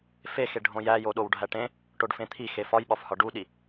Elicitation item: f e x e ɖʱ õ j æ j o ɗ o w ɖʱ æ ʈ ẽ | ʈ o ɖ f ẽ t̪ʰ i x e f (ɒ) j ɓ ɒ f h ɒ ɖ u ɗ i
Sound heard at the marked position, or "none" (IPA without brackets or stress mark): ɒ